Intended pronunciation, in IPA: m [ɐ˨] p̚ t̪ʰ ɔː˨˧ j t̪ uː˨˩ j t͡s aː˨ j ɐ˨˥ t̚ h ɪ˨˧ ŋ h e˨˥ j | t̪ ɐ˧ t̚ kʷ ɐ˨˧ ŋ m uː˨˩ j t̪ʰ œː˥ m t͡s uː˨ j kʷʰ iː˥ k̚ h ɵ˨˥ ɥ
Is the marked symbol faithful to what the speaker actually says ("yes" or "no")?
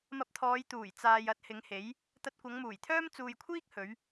no